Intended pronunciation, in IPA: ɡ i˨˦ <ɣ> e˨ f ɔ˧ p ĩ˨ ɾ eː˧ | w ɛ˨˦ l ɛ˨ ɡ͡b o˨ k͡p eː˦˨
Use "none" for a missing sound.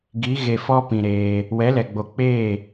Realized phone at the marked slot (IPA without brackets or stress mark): ɣ